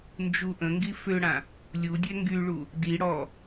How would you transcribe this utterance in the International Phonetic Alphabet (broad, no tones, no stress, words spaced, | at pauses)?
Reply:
nd͡ʒuʔə̃ŋɡi føɽã | lʲudʲɛ ŋɡyɭu | di ɽɔ